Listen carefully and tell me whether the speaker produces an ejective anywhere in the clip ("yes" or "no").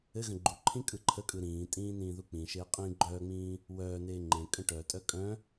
yes